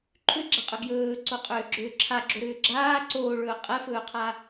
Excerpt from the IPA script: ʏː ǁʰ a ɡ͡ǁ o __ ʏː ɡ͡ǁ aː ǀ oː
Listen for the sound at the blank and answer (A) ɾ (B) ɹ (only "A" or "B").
A